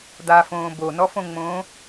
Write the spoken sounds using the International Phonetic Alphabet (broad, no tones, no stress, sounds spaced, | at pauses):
d̪ a f õː b o n ɔ f õ ŋ͡m õː